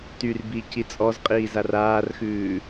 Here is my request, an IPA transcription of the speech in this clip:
t y r b i c i t͡sʼ ɔ z qʼ iː z a r aː r x ʉː

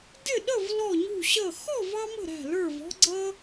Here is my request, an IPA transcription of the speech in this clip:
d ɪ˥˧ ɗ ə˥˧ v l ɔ˥˧ ɲ ṳ˥˧ ɕ ʌ˥˧ x ɔ˥˧ v ɑ˥ m ə̤˥˧ ɾ æ̤˥˧ l ə˞˥˧ v ɔ̤˥ ɡ͡ǀ ʌ˥

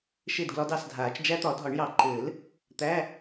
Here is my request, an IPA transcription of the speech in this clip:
ʃ e˥˨ d ɡ l ɒ˦˥ d ɑ˥˨ s dʱ aː˨˩˦ t͡ʃ d͡ʒ æ˦˥ t̪ ɒ˨˩˦ dʱ ɒ˨˩˦ ɳ j ɑ˨˩ ǃ ɘː˨˩˦ l | t̪ æ˧˥˧

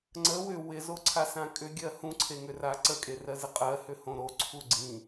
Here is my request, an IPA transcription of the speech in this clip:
ŋ͡ǀ ə w ʏ w ɪ z o ǀʰ a s ã kʼ ʏ ɡʲ ɜ h ũ ǀʰ e ŋ ʏ r a ǀ ə kʼ e r ɜ z ɪ qʼ ɜ h ʏ h õ ɾ o ǀʰ u ɡ͡ǀ ĩ

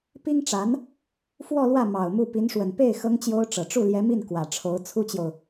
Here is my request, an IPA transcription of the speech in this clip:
p i˥ ŋ ʈ͡ʂ a˧˥ n | f w ɔ˥˧ l w ä˥˩ m ɑ˨˩ ʊ̯ m u˥˩ p i˧˥ n ʂ w ə˨˩ n p e˥˩ ɪ̯ x ɤ˥ ŋ t͡ɕ j o˥ ʊ̯ ʈ͡ʂ ɤ˨˩ ʈ͡ʂ u˥˩ l j ɛ˧˥ m i˥˩ n k w ä˨˩ ʈ͡ʂʰ o˧˥ ʊ̯ t͡sʰ u˥ t͡ɕ j o˨ ʊ̯

